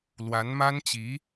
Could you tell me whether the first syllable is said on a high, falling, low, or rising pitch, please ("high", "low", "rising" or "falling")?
rising